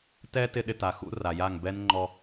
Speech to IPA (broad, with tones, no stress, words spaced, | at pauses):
tɛ˦tɪ˧ ɗɪ˧ta˨xṵ˦ ra˨ja˦˨ŋbɛ˦n ŋ͡ǃɔ˧